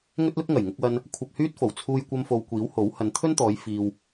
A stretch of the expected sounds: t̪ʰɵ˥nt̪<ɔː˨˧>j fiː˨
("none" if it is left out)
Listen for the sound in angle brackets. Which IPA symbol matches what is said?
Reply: ɔː˨˧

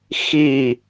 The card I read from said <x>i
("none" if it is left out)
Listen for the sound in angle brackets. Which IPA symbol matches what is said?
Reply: x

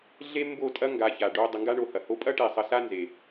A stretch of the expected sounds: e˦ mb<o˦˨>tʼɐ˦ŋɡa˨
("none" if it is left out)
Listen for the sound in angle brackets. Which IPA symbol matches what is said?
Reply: o˦˨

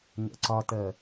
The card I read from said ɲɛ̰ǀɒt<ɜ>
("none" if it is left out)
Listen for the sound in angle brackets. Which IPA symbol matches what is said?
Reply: ɜ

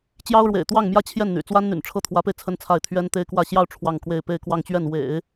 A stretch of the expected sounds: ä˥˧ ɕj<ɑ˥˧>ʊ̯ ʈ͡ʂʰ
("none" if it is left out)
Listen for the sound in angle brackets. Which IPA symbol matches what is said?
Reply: ɑ˥˧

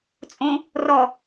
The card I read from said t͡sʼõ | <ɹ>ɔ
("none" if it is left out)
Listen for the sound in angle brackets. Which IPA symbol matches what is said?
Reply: r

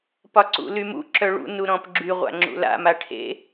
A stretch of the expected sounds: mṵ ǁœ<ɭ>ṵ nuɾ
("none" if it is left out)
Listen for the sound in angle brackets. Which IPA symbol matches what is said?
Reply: ɭ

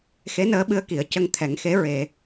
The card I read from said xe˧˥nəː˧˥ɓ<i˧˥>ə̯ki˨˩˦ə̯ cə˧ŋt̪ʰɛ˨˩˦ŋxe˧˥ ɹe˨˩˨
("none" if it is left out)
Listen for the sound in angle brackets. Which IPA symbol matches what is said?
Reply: ɨ˧˥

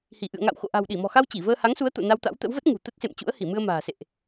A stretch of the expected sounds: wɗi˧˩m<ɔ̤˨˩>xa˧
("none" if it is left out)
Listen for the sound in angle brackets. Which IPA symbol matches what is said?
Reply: ɔ̤˨˩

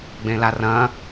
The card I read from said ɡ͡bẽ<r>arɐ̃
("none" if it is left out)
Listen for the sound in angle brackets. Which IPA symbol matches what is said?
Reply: l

